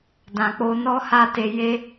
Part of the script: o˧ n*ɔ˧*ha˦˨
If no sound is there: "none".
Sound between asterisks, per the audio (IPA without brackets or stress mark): ɔ˦